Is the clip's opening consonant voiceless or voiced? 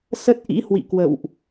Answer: voiceless